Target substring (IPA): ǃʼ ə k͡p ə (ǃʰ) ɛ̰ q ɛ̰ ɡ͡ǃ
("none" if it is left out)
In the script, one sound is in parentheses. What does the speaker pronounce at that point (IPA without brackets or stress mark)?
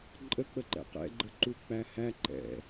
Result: ǃ